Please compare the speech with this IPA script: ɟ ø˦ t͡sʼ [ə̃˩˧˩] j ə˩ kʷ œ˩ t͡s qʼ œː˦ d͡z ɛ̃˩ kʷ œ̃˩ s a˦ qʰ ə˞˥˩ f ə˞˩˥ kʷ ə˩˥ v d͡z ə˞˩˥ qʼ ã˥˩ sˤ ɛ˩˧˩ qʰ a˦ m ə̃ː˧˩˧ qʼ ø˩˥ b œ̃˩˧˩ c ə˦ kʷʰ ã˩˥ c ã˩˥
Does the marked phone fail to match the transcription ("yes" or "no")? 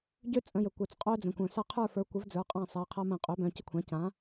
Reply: no